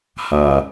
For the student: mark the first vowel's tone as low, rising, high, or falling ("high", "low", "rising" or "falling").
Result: low